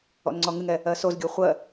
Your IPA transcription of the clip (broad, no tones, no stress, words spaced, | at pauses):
ɔ̰nŋ͡ǀɔŋɨŋɛ | ɜsozɡʲo χʷɜ